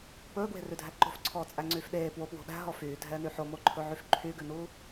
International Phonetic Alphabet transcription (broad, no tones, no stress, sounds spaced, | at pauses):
p ɵː ɡ w e̤ r ʉ dʱ æ ǃ o̤ f ǀʰ ɔː t͡sʼ æ ŋ͡ǀ yː f ɗ eː p w o p w o̤ ɗ æ̤ ɦ ɔ f yː dʱ ɛː n y ħ o m o ǃʰ ɵ ʕ y f ǃʰ y ɡ ʉ n uː